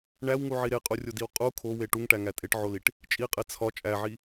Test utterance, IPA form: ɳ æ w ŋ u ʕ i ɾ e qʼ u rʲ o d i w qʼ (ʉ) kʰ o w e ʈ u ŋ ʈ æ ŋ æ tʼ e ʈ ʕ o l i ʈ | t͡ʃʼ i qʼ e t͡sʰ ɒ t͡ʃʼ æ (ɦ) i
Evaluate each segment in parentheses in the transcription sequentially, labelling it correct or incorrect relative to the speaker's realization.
incorrect: u, incorrect: ʕ

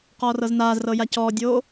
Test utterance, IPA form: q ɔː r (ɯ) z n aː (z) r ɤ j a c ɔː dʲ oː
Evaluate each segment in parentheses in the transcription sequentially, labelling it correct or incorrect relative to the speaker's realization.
incorrect: ɤ, correct

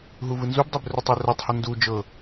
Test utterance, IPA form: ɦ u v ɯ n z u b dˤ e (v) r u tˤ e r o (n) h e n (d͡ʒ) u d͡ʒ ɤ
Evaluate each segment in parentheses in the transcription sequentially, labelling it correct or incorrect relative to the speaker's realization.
incorrect: b, incorrect: tˤ, incorrect: d

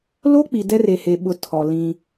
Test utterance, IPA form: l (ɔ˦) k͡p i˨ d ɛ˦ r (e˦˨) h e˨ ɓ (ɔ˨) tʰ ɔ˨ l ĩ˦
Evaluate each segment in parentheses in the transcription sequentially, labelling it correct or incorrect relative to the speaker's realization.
incorrect: o˦, incorrect: e˨, incorrect: ʊ˨

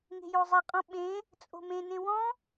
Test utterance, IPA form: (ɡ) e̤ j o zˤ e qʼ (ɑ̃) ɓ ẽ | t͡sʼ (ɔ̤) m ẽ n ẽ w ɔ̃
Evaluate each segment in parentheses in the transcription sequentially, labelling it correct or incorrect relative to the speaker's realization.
incorrect: ŋ, incorrect: ɔ̃, incorrect: o̤

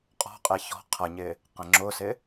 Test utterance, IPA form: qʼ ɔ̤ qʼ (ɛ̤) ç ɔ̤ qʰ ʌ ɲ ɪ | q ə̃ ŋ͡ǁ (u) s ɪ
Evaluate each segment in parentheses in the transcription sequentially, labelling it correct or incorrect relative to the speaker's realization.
incorrect: ɛ, incorrect: ʊ

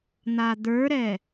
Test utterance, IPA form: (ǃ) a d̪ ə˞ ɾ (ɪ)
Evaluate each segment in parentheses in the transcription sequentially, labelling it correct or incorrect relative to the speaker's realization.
incorrect: n̪, incorrect: ɛ

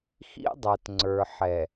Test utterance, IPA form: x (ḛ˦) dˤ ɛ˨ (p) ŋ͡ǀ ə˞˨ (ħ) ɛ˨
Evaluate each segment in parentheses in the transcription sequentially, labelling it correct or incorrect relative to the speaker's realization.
incorrect: ḭ˦, incorrect: t, correct

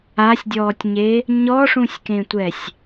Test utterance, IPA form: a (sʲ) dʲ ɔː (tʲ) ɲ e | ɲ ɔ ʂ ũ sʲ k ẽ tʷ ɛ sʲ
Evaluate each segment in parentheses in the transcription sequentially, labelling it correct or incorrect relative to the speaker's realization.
correct, correct

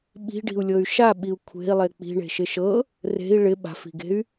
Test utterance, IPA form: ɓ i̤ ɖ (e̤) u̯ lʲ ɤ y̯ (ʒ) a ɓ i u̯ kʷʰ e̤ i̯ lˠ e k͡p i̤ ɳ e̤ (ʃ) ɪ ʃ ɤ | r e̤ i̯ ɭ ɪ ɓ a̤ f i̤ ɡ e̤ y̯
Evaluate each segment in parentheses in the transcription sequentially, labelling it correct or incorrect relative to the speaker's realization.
incorrect: i̤, incorrect: ʃ, correct

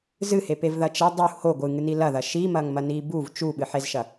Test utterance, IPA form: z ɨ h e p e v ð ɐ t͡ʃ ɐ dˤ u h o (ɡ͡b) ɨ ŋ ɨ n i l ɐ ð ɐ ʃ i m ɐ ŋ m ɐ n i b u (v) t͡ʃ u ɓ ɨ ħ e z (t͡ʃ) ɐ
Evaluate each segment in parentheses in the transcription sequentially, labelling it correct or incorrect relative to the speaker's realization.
incorrect: ɡʷ, correct, incorrect: ʃ

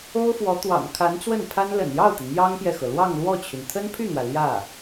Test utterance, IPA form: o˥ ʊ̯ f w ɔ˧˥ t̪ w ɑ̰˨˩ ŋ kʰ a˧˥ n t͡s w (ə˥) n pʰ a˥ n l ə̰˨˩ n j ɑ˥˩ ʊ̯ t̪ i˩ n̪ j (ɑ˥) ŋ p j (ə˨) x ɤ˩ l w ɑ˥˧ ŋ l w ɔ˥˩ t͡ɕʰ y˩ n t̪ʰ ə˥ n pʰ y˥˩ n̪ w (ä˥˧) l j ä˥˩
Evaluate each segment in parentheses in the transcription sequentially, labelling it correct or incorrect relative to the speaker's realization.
incorrect: ə˥˩, correct, incorrect: ɛ˨, incorrect: ä˩

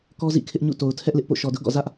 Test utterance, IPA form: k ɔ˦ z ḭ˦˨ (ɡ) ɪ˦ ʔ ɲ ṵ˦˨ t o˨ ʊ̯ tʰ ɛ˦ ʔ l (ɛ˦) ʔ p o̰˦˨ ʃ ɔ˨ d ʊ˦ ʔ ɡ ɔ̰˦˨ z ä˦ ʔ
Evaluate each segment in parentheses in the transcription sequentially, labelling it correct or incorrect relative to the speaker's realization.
incorrect: kʰ, incorrect: ɪ˦

